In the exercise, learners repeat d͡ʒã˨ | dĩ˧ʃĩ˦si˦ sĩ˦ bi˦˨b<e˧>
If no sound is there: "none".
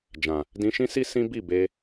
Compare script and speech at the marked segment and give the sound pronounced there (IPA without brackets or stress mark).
e˧